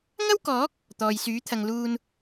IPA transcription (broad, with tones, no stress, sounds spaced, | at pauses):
ŋ ɐ˥ w k ɔː˨˥ k̚ | t̪ ɔː˨ j s yː˨˥ t̪ʰ ɐ˨ ŋ l uː˨ n